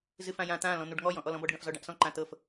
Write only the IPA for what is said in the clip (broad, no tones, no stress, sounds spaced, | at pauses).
z ɨ f ã j ã t̪ ã l ɔ̃ n̪ u ɖ ŋ ɔ j ɔ̃ ʔ ɔ l ɔ̃ b ɔ ɖ ɡ ã f z ɔ ɖ ã ʔ s ɔ̃ ǃ ã t̪ ɤ f